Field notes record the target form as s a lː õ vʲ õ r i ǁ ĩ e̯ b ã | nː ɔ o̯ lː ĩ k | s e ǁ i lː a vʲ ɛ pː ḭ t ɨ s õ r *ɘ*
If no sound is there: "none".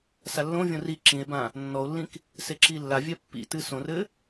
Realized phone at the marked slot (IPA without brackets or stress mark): ɘ